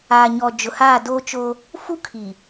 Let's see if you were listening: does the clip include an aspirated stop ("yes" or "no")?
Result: yes